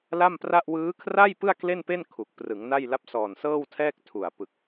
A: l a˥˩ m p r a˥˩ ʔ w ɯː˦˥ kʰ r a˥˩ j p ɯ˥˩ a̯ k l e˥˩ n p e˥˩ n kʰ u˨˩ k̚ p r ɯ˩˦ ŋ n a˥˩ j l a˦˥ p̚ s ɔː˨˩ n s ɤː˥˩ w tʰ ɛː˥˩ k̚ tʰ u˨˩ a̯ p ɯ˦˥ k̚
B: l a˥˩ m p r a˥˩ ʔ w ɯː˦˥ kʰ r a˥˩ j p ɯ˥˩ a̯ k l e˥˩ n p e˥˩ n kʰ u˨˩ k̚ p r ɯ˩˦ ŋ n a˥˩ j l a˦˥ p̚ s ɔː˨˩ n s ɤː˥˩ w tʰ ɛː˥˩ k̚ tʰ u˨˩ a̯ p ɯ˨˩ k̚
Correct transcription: B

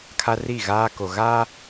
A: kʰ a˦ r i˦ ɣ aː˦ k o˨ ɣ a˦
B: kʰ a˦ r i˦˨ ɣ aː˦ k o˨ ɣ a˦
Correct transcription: B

